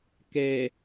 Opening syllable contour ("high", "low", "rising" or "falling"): low